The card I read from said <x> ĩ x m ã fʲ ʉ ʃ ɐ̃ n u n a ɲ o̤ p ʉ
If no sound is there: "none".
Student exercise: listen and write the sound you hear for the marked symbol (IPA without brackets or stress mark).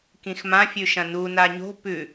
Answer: k